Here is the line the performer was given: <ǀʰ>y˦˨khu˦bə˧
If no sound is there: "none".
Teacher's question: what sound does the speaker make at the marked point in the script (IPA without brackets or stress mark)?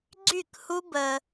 ɡ͡ǀ